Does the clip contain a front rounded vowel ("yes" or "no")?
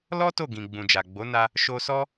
no